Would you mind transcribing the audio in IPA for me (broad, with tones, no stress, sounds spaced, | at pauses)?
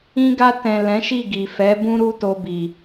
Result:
ĩ˧ ɡ a˧ t ɛ̃˨ l ɛ̃˨˦ ʃ i˦˨ ɡ i˨ f ɛ˨˦ b ũ˦ ɾ u˦ t o˧ b i˨